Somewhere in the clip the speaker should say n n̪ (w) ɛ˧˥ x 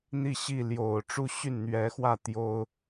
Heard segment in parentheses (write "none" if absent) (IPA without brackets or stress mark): ɥ